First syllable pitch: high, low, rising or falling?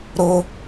high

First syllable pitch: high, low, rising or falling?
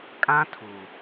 high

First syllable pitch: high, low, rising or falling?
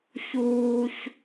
high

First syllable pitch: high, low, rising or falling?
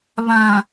low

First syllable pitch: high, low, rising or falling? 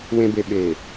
low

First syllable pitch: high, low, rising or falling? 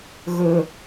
high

